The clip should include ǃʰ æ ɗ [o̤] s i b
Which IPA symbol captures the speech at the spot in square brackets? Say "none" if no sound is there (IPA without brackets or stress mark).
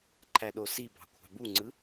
o